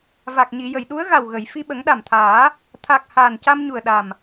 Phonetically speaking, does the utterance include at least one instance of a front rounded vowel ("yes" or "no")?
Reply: no